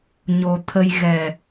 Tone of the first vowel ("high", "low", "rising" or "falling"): low